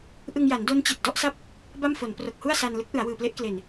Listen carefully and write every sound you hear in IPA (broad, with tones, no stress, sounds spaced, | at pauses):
ʔ ɯ˧ ŋ j a˩˦ n d o˦˥ n t͡ɕ i˨˩ t̚ d ɔ˦˥ ʔ s a˥˩ p̚ | b a˥˩ m f o˩˦ n p r o˨˩ k̚ h u˥˩ a̯ s a˧ n l ɯ˦˥ k̚ ʔ ɯ˩˦ a̯ w ɯː˨˩ p l e˦˥ ʔ k l e˨˩ n